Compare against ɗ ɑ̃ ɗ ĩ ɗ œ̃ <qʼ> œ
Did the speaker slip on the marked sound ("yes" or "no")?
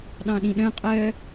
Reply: no